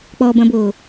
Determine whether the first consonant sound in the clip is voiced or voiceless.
voiceless